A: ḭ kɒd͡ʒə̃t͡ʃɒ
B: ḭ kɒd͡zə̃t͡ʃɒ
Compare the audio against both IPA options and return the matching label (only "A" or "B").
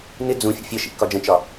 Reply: A